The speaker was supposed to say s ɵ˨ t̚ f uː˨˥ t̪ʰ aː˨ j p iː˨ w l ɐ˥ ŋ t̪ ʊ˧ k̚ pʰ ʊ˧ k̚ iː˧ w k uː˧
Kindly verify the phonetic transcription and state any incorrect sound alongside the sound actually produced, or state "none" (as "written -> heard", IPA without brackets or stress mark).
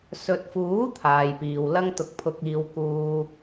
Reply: none